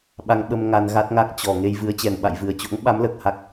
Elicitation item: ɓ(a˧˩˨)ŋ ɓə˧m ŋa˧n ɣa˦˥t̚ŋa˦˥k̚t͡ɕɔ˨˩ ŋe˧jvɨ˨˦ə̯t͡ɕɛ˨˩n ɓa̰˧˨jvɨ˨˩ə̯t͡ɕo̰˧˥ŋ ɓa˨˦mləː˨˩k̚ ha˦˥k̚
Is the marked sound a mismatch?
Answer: yes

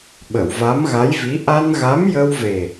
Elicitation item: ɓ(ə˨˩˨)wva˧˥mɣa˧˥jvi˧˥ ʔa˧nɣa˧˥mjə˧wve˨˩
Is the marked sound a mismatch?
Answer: no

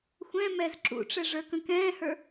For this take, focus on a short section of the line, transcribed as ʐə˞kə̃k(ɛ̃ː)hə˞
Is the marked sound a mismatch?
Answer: no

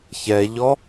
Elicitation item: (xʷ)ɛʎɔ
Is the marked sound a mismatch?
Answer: yes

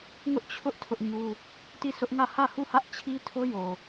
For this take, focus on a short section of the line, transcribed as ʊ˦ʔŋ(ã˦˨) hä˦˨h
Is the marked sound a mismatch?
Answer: yes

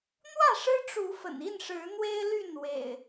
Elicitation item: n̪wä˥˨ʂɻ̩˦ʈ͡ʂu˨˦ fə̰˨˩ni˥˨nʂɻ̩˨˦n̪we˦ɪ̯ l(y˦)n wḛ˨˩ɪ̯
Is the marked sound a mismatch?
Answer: yes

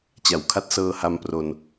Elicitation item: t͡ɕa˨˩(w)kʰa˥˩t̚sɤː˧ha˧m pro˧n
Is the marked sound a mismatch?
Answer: no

